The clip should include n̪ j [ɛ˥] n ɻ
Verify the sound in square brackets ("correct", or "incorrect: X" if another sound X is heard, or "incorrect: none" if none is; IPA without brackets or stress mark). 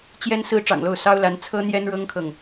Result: correct